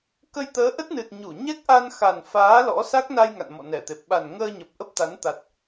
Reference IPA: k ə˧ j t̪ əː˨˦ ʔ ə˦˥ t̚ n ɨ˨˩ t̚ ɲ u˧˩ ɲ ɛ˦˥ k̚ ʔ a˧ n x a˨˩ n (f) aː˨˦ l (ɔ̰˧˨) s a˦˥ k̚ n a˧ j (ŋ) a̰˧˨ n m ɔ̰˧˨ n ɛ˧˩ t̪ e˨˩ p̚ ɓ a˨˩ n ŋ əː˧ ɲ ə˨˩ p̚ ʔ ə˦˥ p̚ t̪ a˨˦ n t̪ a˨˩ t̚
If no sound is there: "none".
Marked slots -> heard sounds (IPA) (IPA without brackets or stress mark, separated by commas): f, ɔ̰˧˥, ŋ